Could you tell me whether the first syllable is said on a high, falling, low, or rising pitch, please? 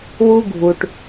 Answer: high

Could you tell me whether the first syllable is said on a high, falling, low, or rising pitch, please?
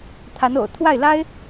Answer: rising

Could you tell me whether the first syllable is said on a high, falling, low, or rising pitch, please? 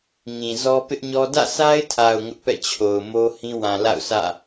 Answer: low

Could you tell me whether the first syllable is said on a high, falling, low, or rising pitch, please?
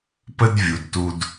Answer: high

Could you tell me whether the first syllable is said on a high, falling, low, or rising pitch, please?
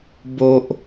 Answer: high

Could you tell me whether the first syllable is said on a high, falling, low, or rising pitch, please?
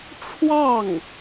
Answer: falling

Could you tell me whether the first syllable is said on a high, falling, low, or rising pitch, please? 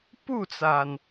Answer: falling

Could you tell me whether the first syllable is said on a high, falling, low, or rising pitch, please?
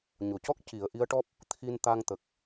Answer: low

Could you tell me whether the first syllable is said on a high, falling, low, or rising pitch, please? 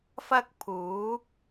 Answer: high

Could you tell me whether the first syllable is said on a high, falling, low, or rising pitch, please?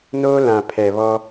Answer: high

